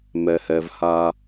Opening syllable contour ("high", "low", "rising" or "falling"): low